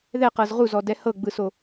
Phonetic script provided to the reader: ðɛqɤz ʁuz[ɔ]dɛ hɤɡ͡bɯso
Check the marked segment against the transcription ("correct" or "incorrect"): correct